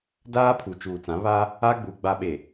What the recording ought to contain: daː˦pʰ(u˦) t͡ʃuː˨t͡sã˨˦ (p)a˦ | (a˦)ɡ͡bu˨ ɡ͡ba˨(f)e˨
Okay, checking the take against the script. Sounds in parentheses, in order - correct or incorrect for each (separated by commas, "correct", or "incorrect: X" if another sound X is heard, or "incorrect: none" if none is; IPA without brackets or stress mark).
incorrect: u˨, incorrect: β, correct, incorrect: ɓ